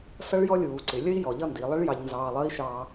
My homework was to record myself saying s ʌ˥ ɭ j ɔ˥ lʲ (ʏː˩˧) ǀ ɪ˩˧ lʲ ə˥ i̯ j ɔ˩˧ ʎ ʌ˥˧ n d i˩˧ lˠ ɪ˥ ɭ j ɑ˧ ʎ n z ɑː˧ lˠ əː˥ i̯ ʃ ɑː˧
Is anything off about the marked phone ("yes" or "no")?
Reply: yes